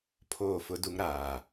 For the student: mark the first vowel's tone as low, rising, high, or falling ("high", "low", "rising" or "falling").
falling